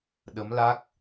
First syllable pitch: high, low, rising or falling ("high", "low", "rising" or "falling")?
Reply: rising